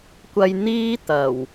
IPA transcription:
kʷɐ˧jn̪iː˥t̪ɐ˨˩w

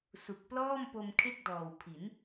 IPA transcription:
su˨˩k̚plɔː˥˩mpo˧m kʰe˥˩k̚dɔː˨˩w pʰi˩˦n

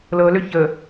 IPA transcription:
lɤlʏ çə

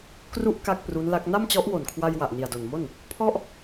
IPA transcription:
kru˥˩ʔ ka˥˩k̚pru˦˥nla˦˥k̚ na˥˩mt͡ɕɔ˦˥ʔwo˨˩n kʰwa˧j wa˨˩ʔni˨˩a̯do˨˩nmo˥˩n | pʰɔ˥˩ʔ

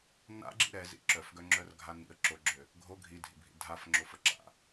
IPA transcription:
na̰ ɡ͡ǁḭɾɛzḭ ǁœfɡœŋ͡ǁœrɡʱa nḭə̯ ǁoɡ͡ǁø | ɡʱo ɡʱidʱḭbʱḭ dʱaf ŋ͡ǁofəǁa̰

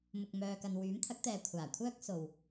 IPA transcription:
mʊ˨k̚mœː˨kɐ˨n wyː˨˥mt̪ʰɐ˨˥k̚t̪ɛː˨ kʷʰaː˨˩kʷʰœː˥k̚ so˨w

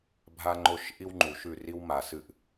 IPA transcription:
bʱa˦ŋ͡ǃo˦ʃ ʔi˦wŋ͡ǃu˨ ʃʉ˦˨ ri˦wma˨sɨ˦˨ʔ

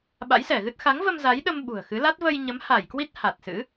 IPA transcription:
ɓa̰˧˥jsɛ˧˩ɣɨ˦˥t̚ xa˨˦ŋvə˧m za˨˦jɗə˧m ɓṳ˨˩ə̯xɨ˨˦la˦˥t̚ və˧jɲə˨˦mha˧˩jkwi˦˥t̚ ha˨˩t̚sɨ̰˧˥

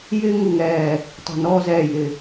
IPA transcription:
jɪː˧ŋu˨˩ ŋɛː˨˩ | tˤi̤˨˩nɔː˧zɛː˨˩ jɪ˨˩

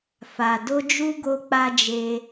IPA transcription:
fa˨ do˧d͡ʒu˧ ɡo˦k͡pa˦d͡ʒe˦

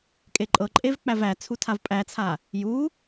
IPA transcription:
kʼeǃʼɤǃʼev k͡pævæt͡sʰu tʰavpʼæt͡sʰa | ju

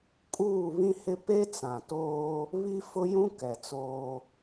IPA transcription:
kʼuː˦˨ βĩ˦hɪ˦ pe˦t͡sã˨toː˦ | βi˦ fʊ˦jũ˦ kɛ˨t͡soː˦

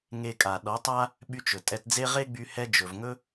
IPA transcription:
ŋe˧kʼa˨ ɗɔ˨˦tˤa˦ | ɓy˧t͡ʃɵ˨tʼɛ˧t d͡ze˧ ʁe˦ɡ͡by˧ hɛ˧d͡ʒɵ˨vŋɵ˦

